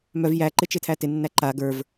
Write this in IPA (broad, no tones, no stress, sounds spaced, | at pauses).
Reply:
m œ v j æ ǃ ɪ t͡ʃ ɪ tʰ æ t ɪ nː æ ǃ a ɡ ə˞ v